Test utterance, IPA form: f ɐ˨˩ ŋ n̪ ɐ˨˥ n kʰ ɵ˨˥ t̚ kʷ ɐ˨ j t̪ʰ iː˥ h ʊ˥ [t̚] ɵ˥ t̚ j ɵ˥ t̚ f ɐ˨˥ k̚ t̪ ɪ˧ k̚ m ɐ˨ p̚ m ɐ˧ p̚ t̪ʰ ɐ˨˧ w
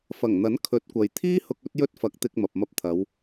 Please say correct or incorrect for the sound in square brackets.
incorrect: k̚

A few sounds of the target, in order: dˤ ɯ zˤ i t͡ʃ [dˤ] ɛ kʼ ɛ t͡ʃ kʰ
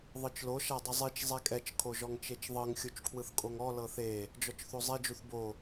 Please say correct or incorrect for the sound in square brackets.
incorrect: zˤ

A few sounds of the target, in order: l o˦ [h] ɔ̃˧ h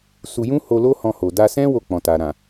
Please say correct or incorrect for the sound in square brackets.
correct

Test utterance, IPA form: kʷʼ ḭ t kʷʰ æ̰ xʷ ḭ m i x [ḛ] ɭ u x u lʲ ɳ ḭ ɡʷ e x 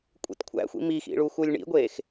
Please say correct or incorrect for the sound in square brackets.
incorrect: ḭ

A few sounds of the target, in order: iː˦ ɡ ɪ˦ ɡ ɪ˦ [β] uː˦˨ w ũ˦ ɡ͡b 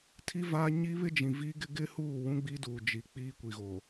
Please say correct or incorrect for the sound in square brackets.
incorrect: h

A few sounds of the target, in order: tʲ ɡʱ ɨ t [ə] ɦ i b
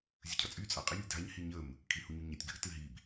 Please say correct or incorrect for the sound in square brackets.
incorrect: ɨ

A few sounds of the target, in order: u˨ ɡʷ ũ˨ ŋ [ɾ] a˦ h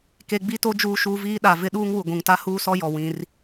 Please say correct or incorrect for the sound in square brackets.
incorrect: t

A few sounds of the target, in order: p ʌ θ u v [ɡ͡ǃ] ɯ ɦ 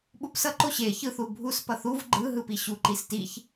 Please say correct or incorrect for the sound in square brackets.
correct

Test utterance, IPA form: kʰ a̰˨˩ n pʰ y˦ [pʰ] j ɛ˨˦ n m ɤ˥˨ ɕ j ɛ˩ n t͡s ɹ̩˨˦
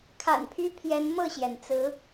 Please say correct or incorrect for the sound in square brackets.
correct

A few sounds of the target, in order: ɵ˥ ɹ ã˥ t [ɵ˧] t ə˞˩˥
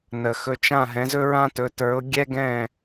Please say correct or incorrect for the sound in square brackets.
incorrect: ɵ˩˥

